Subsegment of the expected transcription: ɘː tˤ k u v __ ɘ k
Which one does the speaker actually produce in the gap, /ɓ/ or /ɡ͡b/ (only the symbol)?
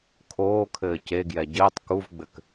ɡ͡b